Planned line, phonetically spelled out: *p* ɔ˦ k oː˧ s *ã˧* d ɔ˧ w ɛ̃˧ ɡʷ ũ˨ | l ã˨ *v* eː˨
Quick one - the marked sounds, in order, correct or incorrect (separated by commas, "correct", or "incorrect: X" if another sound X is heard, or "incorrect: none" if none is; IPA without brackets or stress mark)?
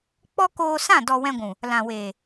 incorrect: k͡p, incorrect: ã˦˨, incorrect: w